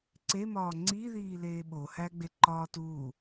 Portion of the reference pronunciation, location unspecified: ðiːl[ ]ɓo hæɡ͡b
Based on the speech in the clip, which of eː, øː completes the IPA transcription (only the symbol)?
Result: eː